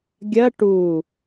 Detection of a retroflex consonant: present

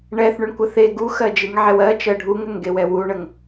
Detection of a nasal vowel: absent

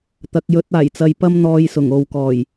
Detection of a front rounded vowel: absent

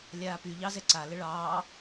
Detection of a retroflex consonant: present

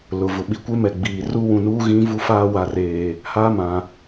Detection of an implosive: present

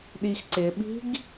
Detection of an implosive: present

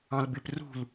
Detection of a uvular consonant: absent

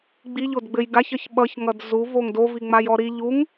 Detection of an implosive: present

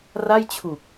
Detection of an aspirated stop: present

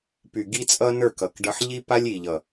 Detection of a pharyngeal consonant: present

